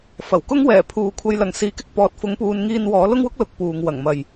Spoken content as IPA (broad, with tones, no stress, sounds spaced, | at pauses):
f ɐ˨˩ w k ʊ˥ ŋ w ɛː˨˩ pʰ uː˨ kʷʰ ɐ˧ j l ɐ˨ ŋ s iː˨˧ k ɪ˥ k̚ p ɔː˨ t̚ f ʊ˨˥ ŋ p uː˨˧ n ŋ iː˧ n w ɔː˨˥ l ʊ˥ ŋ w ʊ˥ k̚ l ʊ˧ k̚ p uː˨ ŋ w ɐ˨˩ ŋ m ɐ˨ j